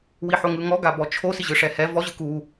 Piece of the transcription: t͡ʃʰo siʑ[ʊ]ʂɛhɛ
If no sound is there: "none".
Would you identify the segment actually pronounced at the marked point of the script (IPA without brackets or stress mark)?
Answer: ɯ